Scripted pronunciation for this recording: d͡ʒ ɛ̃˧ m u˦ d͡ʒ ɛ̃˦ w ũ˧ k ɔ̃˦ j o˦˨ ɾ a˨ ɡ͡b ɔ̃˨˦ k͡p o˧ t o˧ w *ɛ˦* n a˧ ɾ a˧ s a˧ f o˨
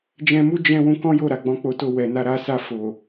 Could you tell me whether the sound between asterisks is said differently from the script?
yes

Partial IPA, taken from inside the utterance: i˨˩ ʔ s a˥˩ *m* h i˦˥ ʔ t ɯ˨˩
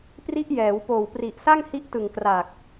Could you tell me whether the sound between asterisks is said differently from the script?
yes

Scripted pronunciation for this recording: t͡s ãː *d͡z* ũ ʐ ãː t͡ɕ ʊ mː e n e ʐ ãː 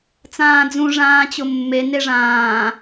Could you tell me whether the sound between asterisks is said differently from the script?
no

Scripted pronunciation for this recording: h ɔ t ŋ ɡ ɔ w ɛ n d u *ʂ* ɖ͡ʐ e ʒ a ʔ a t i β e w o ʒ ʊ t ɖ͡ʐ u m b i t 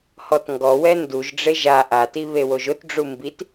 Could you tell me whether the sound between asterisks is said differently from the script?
yes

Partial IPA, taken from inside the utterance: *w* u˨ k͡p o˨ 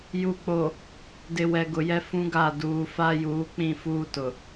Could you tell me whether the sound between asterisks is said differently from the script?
yes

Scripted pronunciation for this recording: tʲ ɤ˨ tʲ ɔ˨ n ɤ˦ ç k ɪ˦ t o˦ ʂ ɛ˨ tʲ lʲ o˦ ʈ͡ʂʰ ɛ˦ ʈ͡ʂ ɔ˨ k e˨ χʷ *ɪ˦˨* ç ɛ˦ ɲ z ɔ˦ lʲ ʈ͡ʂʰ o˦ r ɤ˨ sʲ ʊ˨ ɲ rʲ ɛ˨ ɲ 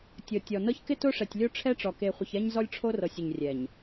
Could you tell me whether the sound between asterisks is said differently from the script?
yes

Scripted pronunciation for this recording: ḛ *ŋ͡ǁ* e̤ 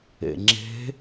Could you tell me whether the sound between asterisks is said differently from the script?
no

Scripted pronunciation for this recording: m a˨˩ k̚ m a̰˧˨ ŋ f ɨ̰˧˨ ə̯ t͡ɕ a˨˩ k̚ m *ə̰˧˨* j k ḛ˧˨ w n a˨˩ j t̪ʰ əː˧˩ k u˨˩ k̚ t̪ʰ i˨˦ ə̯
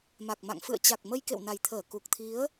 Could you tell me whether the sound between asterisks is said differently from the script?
yes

